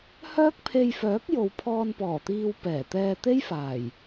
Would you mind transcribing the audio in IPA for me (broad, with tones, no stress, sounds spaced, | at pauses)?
h œː˥ k̚ pʰ e˧ j f œː˨˥ k̚ j o˨ w pʰ ɔː˧ n p ɔː˨˩ t̪ iː˧ w p ɛː˨˩ t̪ ɛː˧ t̪ e˥ j f aː˨˩ j